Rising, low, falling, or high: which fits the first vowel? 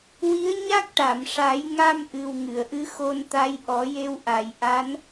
rising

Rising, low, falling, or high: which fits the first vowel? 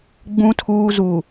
low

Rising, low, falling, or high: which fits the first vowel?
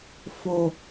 falling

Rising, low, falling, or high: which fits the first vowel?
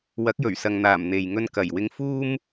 rising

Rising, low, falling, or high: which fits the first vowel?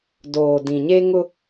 low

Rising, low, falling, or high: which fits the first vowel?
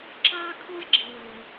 high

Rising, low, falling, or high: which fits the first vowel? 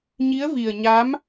rising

